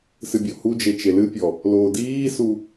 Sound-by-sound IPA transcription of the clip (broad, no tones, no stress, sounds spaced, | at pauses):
s ɨ bʲ ɔ h u d͡ʒ e t͡ʃ e l ɨ pʲ ɔ | l oː d iː s u